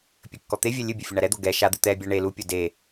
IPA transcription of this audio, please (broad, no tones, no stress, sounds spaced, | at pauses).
pʲ ɘ kː ɔ t̪ e vʲ ɛ lʲ ɨ bʲ ɘ fʲ ɔ ɳ a ɾ ɛ d̪ o ɡ ɛ ʃ a d̪ ɨ t̪ ɛ bʲ a ɳ e l u pʲ o d e